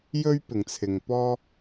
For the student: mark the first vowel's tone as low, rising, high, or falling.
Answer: high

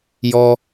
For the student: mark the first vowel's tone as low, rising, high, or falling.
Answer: low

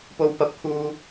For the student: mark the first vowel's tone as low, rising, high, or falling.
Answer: high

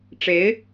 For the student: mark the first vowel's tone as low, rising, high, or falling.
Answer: rising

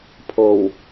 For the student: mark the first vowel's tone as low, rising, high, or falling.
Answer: low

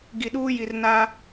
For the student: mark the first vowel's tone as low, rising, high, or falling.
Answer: low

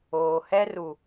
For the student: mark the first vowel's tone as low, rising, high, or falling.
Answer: low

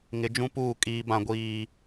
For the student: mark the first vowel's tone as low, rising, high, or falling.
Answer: rising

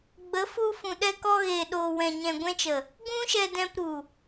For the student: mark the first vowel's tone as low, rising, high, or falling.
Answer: rising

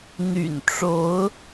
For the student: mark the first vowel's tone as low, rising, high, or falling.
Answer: low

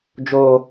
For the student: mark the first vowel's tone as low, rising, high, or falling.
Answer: high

